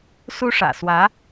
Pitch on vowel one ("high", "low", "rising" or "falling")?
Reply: high